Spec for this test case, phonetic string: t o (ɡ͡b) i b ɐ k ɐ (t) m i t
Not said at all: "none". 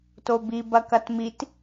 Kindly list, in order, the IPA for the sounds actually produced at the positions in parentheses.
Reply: b, t

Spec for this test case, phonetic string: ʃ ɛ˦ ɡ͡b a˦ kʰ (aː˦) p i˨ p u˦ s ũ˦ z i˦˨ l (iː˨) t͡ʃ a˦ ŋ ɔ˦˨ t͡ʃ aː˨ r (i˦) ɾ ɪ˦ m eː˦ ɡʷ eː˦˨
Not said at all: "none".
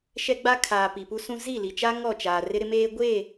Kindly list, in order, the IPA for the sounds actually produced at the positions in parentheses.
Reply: aː˨, i˨, ɪ˦

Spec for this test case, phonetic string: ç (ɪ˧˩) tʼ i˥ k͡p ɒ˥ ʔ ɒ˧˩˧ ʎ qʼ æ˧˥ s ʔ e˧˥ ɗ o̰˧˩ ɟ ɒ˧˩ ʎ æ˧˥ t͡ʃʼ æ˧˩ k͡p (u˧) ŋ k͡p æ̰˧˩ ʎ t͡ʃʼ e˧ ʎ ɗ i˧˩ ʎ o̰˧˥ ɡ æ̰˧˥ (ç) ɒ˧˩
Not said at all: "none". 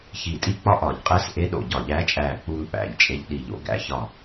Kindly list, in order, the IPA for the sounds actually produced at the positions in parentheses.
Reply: i˧˩, u˧, ç

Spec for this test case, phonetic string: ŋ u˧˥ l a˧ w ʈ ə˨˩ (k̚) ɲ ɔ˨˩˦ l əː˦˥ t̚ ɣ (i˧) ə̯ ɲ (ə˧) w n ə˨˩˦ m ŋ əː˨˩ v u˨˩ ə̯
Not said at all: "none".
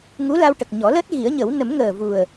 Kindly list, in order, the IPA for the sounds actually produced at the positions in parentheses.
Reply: k̚, i˨˩˦, ə˨˩˦

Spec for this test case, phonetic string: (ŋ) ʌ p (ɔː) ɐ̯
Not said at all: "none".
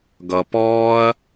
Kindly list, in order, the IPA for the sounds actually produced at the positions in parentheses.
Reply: ɡ, ɔː

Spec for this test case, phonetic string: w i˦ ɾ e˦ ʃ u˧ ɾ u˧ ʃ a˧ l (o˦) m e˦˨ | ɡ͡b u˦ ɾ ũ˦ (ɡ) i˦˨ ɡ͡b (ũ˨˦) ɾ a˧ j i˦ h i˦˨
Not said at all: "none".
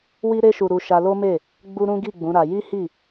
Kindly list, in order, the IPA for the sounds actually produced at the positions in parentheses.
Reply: o˦, ɡ, ũ˨˦

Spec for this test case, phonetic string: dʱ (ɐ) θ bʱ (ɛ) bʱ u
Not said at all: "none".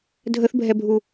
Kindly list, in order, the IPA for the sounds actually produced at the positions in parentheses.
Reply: ə, ɛ

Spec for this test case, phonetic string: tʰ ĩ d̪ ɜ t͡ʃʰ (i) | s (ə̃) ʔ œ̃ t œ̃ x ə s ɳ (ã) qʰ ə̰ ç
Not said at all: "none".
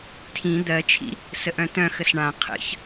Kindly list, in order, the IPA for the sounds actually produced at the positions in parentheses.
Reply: ḭ, ə, ã

